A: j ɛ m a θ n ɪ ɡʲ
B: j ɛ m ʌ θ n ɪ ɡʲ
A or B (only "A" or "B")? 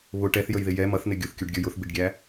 B